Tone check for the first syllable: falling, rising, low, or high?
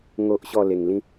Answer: high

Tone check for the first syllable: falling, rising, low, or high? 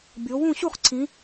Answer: rising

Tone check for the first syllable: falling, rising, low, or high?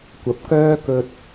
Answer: rising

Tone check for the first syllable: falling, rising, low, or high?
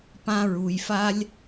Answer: high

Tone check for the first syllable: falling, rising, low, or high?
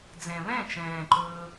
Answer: low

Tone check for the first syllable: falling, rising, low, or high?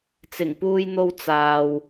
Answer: low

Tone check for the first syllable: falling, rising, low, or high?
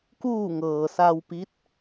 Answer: falling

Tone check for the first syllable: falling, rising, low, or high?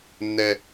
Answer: high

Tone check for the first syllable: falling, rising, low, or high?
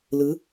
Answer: rising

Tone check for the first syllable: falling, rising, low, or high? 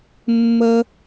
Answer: high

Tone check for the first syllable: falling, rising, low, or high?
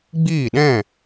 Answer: falling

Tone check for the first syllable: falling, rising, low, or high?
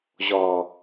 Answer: low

